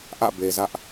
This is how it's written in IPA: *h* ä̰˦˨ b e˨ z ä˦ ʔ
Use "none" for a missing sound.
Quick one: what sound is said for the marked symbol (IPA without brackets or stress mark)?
ʔ